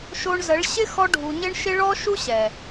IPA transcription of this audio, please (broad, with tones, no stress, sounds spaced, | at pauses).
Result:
ʃ o˧ ɳ z ə˨˦ ɭ ɕ ɪ˦ x ɔ˧ ɖʱ u˨ ɲ ɪ˦ ɳ ʃ ɪ˦ ɭ ɔ˦ ʃ u˦ ɕ ɛ˨